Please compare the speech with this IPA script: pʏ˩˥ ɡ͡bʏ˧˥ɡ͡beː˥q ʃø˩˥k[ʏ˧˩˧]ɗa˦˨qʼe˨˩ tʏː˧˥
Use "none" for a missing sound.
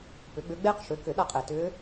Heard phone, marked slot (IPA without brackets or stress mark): ʏ˧˩˧